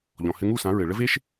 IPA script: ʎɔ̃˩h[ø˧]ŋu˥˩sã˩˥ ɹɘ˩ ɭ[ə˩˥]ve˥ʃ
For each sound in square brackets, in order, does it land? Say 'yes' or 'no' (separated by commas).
no, no